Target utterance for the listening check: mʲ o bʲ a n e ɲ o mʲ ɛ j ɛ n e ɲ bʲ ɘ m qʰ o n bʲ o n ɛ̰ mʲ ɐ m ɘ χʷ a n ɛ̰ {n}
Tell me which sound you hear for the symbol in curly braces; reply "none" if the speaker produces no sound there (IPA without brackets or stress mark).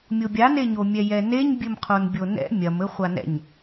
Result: ɲ